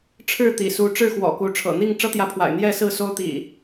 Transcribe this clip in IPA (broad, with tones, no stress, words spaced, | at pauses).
ʈ͡ʂʰɻ̩˥˨t̪ḭ˨˩ su˨˦ʈ͡ʂɻ̩˥˨xwɔ̰˨˩ku˨˦ ʈ͡ʂʰɤ̰˨˩n̪i˥˨ŋ ʈ͡ʂɤ˦t̪jä˨˦pʰwa̰˨˩ɪ̯ n̪jɛ˥˨sɹ̩˥˨ so˦ʊ̯t̪ḭ˨˩